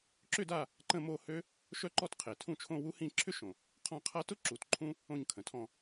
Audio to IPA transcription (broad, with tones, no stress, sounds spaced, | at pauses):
ǁ ʏ˥˧ d a˥˧ | ǃ ə̃˥˧ m o˥˧ h ø˥ | ʃ œ˥ ǃ ɔ˥˧ t qʰ e˨˩ tʰ ũ˥˧ t͡ʃʰ õ˥˧ w u˥ h ĩ˥˧ ǁʰ ʏ˥ ʃ õ˨˩ | qʰ ɔ̃˥˧ qʰ a˥ t ʊ˥ ǁ u˨˩ t ǃʰ ũ˥ | õ˥˧ ɲ kʰ ə̃˨˩ tʰ ɔ̃˥˧